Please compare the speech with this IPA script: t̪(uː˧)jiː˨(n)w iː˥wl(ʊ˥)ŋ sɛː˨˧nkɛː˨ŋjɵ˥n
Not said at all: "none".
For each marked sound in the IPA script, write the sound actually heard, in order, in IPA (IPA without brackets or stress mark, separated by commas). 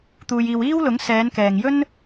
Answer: uː˨, none, ʊ˨˥